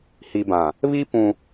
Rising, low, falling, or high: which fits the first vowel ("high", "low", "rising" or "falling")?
low